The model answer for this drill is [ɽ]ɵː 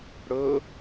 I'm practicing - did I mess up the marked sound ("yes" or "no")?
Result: no